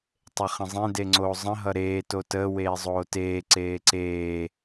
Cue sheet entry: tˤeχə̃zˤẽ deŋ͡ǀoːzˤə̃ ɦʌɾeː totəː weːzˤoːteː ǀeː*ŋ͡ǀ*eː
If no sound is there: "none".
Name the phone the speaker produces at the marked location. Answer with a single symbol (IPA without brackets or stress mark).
ǀ